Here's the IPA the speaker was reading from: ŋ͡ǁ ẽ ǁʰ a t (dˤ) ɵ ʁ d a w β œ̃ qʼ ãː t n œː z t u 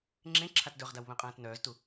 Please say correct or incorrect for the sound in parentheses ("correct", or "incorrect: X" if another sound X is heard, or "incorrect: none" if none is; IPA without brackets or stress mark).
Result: incorrect: d